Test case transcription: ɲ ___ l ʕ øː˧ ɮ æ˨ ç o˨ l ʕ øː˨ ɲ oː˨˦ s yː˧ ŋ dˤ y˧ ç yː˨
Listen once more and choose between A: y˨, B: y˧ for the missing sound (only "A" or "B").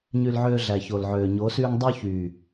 B